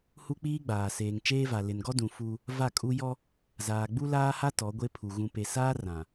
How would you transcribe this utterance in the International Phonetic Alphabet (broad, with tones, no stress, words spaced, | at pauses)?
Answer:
hu˦k͡piː˦ɡ͡baː˨ seː˨ŋt͡ʃeː˦va˨ lɪ˨nɡɔ˦dũ˨ fu˦ | va˦˨kʼu˦ jɔ˦ | zaː˨ɡ͡bu˦laː˦ha˦ tɔ˨˦ɡʷe˦pʰu˨ ɣũ˨pe˨saː˦ rã˨